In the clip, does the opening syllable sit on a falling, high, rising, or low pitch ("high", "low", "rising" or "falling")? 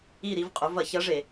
falling